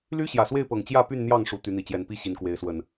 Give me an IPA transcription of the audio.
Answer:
l y˦ ɕ j ä˨˩ s w e˥˨ ɪ̯ p ɤ˨˩ ŋ t͡ɕ j ä˥˨ p y˥˨ n n̪ j ɑ˥˨ ŋ ʂ u˨˩ t̪ y˨˦ n̪ i˨˩ t͡ɕ j ɛ˨˦ n p i˥˨ ɕ i˨˦ n k w e˨˦ ɪ̯ s w ə˨˩ n

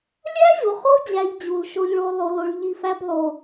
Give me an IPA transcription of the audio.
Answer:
lʲ æ˦ ʑ o˨ χ o˦ d͡ʑ æ˦ ʎ d͡ʑ u˨ l ʃ o˦ ʎ ɭ o˦ lˠ o˦ l o˦ ɭ ʎ i˦˨ f æ˦ b lˠ o˨

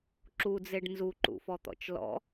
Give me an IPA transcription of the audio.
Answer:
ǁ u d͡z e ɖ n z u ǃ ṵ f ɔ t̪ ɔ̰ t͡ʃ l ɔ̰

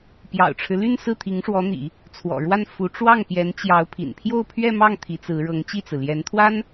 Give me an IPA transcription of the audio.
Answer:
p j ɑ̰˨˩ ʊ̯ ʈ͡ʂʰ ɻ̩˦ l y˥˧ n s ɹ̩˥˩ t̪ʰ i˧˥ ŋ ʂ w ɔ˧˥ n̪ ḭ˨˩˦ | t͡sʰ w ɔ̰˨˩ ɻ w a˥˩ n f u˧˥ ʈ͡ʂ w ɑ˥˩ ŋ p j ɛ˧˥ n t͡ɕ j ɑ˧˥ ʊ̯ pʰ ḭ˨˩ n pʰ j o˥˧ ʊ̯ pʰ ɥ ɛ˥˧ m ɑ˥˩ ŋ t̪ʰ i˧˥ t͡s ɹ̩˧˥ ɻ ɤ˧˥ ŋ t͡ɕ i˥˩ t͡s ɹ̩˩ l j ɛ˧˥ n t̪ʰ w a˥ n

